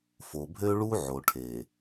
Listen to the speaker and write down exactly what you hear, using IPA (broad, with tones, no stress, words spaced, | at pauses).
fo˨bʱø˦ɭu˦ ʕo˨ʈʰe˨